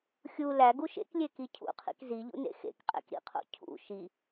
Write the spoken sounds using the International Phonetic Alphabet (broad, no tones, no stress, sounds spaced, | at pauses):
xʲ u l æ ɡ u ʃ ḛ k lʲ e k i cʰ ṵ qʰ ḭ k z i ʎ ṵ n ḛ x ḛ k qʼ ḛ k ɾ ḭ qʰ o̰ cʰ ṵ ʃ i